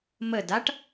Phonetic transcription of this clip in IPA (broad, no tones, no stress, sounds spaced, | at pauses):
m ə d a ʈ